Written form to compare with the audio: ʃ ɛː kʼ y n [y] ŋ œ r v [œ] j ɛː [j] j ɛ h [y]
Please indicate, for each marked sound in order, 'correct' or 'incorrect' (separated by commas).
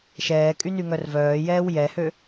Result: correct, incorrect, incorrect, incorrect